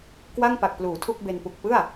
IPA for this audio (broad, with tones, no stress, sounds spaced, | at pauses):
k w a˥˩ ŋ p a˨˩ k̚ p l uː˩˦ tʰ u˥˩ k̚ b e˧ n p u˨˩ k̚ p ɯ˥˩ a̯